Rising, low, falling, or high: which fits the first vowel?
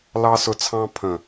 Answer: high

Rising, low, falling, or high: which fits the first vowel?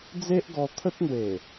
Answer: high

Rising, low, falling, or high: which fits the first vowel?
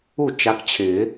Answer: falling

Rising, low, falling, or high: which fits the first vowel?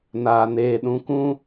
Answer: low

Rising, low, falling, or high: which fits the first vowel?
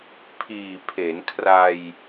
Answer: low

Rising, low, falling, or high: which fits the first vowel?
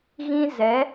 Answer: high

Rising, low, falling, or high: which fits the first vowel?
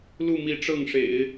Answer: falling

